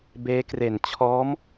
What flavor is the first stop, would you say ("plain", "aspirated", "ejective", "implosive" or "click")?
plain